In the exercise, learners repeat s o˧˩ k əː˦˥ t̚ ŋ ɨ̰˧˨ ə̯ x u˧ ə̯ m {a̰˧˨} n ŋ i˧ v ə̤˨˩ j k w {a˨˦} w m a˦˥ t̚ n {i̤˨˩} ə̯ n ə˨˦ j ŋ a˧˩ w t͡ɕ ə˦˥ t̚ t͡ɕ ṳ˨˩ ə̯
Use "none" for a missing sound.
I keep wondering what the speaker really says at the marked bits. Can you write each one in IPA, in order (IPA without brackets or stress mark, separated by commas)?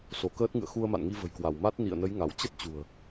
a̰˧˨, a˧˩, ḭ˧˨